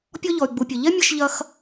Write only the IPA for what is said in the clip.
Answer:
pʲ ɔ˥ ʎ ɔ˧ y̯ ɡ͡b u˧ pʲ ɐ˧ ʎ ɛ˥ mʲ ɐ˥ ʃ ʎ ɐ˥ x

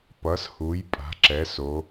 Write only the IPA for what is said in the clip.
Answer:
p ʌ˩˧ s h u˩˧ j pʼ a̤˩˧ ǁ ɛ˩˧ s o˩˧

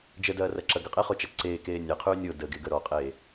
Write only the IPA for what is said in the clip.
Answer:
d͡ʒ ə d ɐː r ɐ ǁ ɐ ɡ ə qʼ e χ o t͡ʃ ɐ ǀ eː k eː nʲ ɐ qʰ ʉː nʲ o d ə ɡ e ɡ ə ɾ ɔ qʼ eː

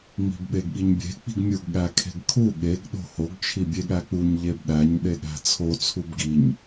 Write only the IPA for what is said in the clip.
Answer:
ŋ͡m i̤ b ɓ e ɡ ɠ i ɲ bʲ e̤ k͡p i̤ ɡ mʲ u ɡ ɠ æ kʰ e̤ ɡ kʰ u ɠ e ɡ ɗ o̤ h o ɡ t͡ʃʰ i bʲ e ɠ æ k͡p u ɲ ʎ e b ɗ æ ɲ ɗ e ɠ æ̤ t͡sʰ o t͡sʰ u b ɡ i ɲ

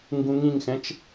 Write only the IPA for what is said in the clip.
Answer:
ŋ ɡ ũ ŋ ĩ ŋ x ɛ̃ t͡ʃ

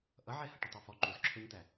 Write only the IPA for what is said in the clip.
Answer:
ʔ ʌ ʕ ɛ h ʌ ʈ ə tˤ ə˞ f ɔ ǃ u z ǁʰ ə˞ ɲ t̪ æ

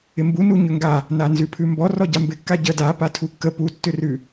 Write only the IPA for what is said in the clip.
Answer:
ɪ m b u n u ɲ ʏ ŋ ɡ a | n a n z ʉ pʰ ʉ m b ɔ r ɔ ɟ a m b ɪ kː a ɟ ə d a p a tʰ u kː ə p u tː ʏ r ʉ

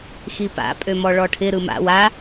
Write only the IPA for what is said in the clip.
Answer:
x i p a̰ pʼ ø m ɔ ɭ ɔ ʈʰ ɪ ɾ ɯ m a̰ w a

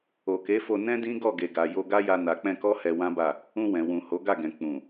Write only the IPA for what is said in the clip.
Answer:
o˨ k e˨˦ f o˧ n ɛ̃˦ d ĩ˦ ɡ ɔ˦˨ ɡ e˨ ɡ a˨ j o˧ ɡ a˦ j a˧ n a˨ k͡p ɛ̃˧ k ɔ˦ h ɛ˧ w ã˦ b a˦˨ | ũ˧ w ɛ̃˨ w ũ˨ h o˨˦ ɡ a˦˨ ɡ ɛ̃˨ k͡p ũ˨

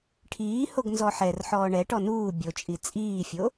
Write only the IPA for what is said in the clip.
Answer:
ʈʰ iː h o ɡ n z ɔ ħ ɛ r ħ ɔː ɳ ɛ ʈ ɔ n uː bʲ o t͡ʃʼ i t͡sʼ iː fʲ o

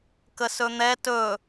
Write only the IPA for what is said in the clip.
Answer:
k ə s ɵ n̪ ɛ t ɵ

